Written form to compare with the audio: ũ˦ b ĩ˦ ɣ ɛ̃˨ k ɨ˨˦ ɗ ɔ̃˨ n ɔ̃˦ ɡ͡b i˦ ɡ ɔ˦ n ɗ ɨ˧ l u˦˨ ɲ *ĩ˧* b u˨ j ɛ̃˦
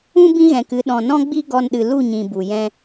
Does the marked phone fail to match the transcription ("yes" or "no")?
yes